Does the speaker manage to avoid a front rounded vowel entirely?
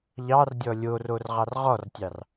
yes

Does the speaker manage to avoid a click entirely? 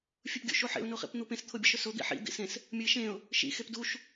yes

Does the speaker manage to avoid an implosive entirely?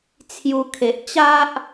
yes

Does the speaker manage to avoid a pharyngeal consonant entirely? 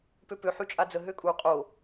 no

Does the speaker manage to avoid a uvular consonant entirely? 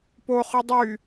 no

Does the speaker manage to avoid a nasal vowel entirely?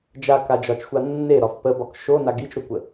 yes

